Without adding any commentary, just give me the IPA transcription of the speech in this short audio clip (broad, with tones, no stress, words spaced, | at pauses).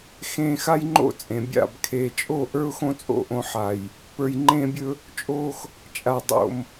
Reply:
xẽː˧xa˦jŋ͡ǃo̰˦ t͡sʼẽ˨bʲa̰˦˨b kʰeː˨t͡ʃʼo˦˨ ʔə˞˦ʊ̯xõ˦t͡sʼo̰˦˨ ʔõ˧ħa˨j | pə˞˨jŋ͡ǃẽː˧bʲɵ˧ | t͡ʃʼoː˧x | t͡ʃʼa˨dˤo̰˨m